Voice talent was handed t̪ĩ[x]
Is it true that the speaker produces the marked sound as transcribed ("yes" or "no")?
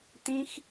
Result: yes